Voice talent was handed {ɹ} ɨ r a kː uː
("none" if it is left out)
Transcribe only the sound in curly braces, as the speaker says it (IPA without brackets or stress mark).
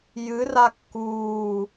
j